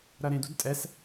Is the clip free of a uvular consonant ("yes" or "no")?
yes